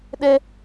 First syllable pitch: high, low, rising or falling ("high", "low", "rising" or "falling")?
high